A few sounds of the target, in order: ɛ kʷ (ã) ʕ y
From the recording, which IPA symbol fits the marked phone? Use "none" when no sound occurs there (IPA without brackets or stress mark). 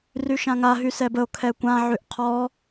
ã